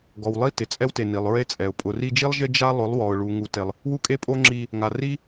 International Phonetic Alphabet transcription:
ɡ ɔ˨ w lˠ i˦ t ɪ˨ t͡sʼ ɛ˦ w t e˨ n i˨ lˠ ɹ e˦ t͡sʼ ɛ˨ ʊ̯ pʼ ʊ˨ r i˧ d͡ʒ i˦ lˠ ʒ ɪ˦ d͡ʒ a˦ lˠ ʊ˨˦ lˠ w ɔ˨ ʊ̯ ɭ u˨ ŋ u˨ t e˨ lˠ | w u˦˨ kʼ e˦ pʼ o˦ ŋ͡ǁ i˧ | ŋ a˨ r i˦

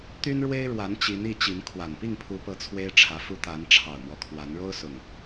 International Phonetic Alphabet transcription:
t̪ y˦ n ɻ w e˦ ɪ̯ ɻ w a˨˦ n t͡ɕ i˨˦ n i˥˨ t͡ɕ i˨˦ n kʰ w a˨˩ n p i˥˨ ŋ pʰ u˨˦ p ɤ˨˦ t͡sʰ w e˦ ɪ̯ ʈ͡ʂʰ ä˨˦ f u˥˨ t̪ a˨˦ n ʈ͡ʂʰ ɑ˨˩ ʊ̯ m w ɔ˦ kʰ w a˨˦ n ɻ o˦ ʊ̯ s ʊ˨˩ ŋ

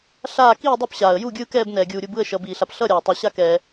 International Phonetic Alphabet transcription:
ɬ aː˥˨ k iː˥˨ dˤ o˥˨ p ɕ aː˩ ə̯ j u˥˨ ɡʲ ɯː˥˨ k ɛː˥˨ b n ɛː˩ ɡʲ uː˩ ɾʲ u˥˨ b ɯ˥˨ ə̯ ʃ ʌː˩ b iː˩ ɬ a˩ p ɬ ʌ˥˨ ɾʲ aː˩ tˤ ɛ˩ ɕ a˥˨ k ɛː˩

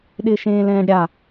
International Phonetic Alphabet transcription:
ɗ ɪː ʃ ẽː l ɛ̃ː ɖ ɾʲ a

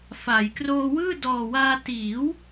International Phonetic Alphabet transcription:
f a˩˦ j k r oː˧ w ɯː˥˩ d ɔː˨˩ w aː˧ t iː˩˦ w

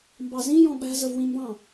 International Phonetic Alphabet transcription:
m b ɑ z ĩ j ɔ̃ ɓ æ̤ z ə v w ĩ m b ɑ̃

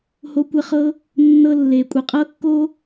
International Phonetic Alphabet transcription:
h o˧ kʷ ə˧ χ ɤ˧ | nː ɤ˦ lː e˨ kʷʼ ə˨ qʼ ɤ˦ kː o˦

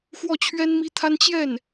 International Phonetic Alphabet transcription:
x w ɔ˥˩ t͡ɕʰ ɥ ɛ˥ n m i˥ t̪ʰ a˥ n t͡ɕ j ɛ˥˩ n

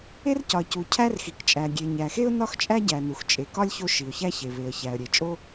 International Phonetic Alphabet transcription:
e˥ r c ɒ˩ ə̯ c u˩ cʰ æ˥ r x i˩ k t͡ʃʼ æ˩ ɡʲ e˩ ɲ æ˩ x e˥ ʊ̯ n ɒ˥ x t͡ʃʼ æ˥ ɟ æ˩ n u˩ x t͡ʃʼ e˩ k ɒ˥ lʲ ç o˥ ʃ i˩ ʊ̯ ç æ˥ ç e˩ β e˩ ə̯ ç æ˩ ə̯ ɾʲ e˩ t͡ʃʼ o˥

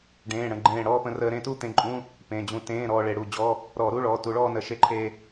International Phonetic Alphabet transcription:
ɖ ẽː˩˧˩ ɽ ə̃˧˩ ɡ͡ǃ ẽː˧˩ ɽ ɔː˥˧ p ə̃˧ r əː˧ ɾ ẽ˥˧ t u˥˧ t̪ ẽ˧ ǃʼ ũ˧˥˧ | p ẽ˩˧˩ d͡ʑ ũ˧˩ t ẽː˧˥˧ ɾ ɔː˧ ɭ e˧˩˧ ɽ u˩˧˩ d͡ʑ ɔ˧˥˧ | ɾ ɔː˧˩˧ ɾ u˧˥˧ ɭ ɔː˩˧˩ t u˧˩˧ ɭ ɔː˥˧ n ə˧˩˧ ʃ e˧ ǃʰ e˧

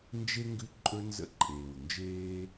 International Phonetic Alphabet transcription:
n d͡ʒ e˦ ŋ ɡ ʉ˧ ǃʼ ɵ˧ n z ə̰˧ ǃʼ eː˨ w n d͡ʒ eː˦

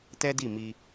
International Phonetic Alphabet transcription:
t ɛ˦ d i˦˨ m i˧

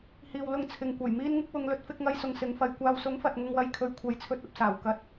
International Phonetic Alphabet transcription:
h iː˨ w l ʊ˧ ŋ t͡sʰ ɪ˨ ŋ kʷ ɐ˨˩ j m iː˧ n ŋ ɪ˧ k̚ w ʊ˨˧ ŋ l ɵ˨˥ t̚ f ɪ˧ k̚ ŋ ɐ˧ j s ʊ˨ ŋ s ɪ˨˥ ŋ f ɐ˨˧ j kʷ aː˨ w s ʊ˨˥ ŋ f ɐ˨˥ t̚ ŋ ʊ˧ ŋ w ɐ˧ j kʰ ɵ˧ ɥ kʷʰ ɐ˨˥ j t͡sʰ ɵ˧ t̚ ɐ˨˥ p̚ s aː˨˩ w k ɐ˧ t̚

